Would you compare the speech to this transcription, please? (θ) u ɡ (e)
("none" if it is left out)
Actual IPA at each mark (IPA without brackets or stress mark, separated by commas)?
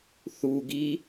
θ, i